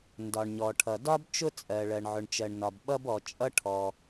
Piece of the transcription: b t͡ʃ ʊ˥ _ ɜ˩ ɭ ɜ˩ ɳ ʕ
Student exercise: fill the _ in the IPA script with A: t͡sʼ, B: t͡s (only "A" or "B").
A